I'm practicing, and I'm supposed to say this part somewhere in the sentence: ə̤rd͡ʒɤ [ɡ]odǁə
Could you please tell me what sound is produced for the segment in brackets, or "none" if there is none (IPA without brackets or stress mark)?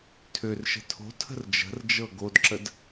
ɡ